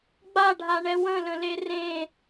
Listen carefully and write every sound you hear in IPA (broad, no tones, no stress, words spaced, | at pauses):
ɡ͡baɖʱaɳɛ wə̃lə̃le rẽ